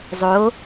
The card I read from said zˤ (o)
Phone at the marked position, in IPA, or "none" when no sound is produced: o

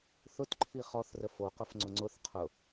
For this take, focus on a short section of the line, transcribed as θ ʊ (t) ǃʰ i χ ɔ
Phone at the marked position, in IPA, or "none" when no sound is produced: t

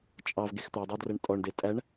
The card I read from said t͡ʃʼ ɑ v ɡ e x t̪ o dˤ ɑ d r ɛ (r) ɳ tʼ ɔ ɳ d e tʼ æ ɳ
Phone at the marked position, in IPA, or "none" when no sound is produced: none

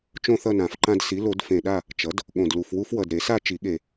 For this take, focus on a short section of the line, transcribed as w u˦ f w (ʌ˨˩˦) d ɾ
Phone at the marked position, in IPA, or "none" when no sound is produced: ʌ˨˩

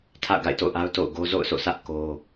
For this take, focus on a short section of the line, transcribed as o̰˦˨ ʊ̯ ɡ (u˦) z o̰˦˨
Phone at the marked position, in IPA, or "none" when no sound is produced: o˦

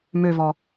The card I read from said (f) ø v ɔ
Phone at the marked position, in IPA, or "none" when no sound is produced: m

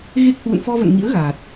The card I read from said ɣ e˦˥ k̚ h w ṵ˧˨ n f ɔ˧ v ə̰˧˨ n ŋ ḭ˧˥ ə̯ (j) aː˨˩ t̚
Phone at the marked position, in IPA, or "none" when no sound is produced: ɣ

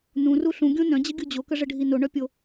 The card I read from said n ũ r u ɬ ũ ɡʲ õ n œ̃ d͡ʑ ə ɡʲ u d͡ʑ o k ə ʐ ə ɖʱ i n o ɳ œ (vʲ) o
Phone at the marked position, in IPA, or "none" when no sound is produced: pʲ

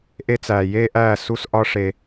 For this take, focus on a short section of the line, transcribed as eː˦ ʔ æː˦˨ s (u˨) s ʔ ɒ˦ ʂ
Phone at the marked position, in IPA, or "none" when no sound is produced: u˦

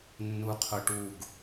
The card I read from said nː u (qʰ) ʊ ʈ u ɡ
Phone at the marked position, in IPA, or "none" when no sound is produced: qʰ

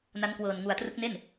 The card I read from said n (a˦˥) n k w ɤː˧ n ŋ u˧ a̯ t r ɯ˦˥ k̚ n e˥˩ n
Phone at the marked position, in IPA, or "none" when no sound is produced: a˦˥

